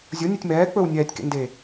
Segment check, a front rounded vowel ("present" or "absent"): present